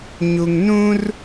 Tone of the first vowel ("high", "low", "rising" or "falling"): low